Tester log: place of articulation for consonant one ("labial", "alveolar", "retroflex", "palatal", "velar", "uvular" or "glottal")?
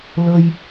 alveolar